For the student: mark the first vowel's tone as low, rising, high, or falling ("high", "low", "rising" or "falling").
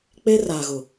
high